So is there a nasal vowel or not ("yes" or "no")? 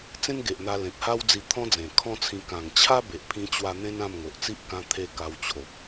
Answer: yes